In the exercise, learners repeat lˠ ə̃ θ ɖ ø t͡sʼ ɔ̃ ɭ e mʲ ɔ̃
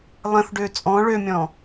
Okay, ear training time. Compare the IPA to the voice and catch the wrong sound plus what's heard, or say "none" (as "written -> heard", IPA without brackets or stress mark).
e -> ø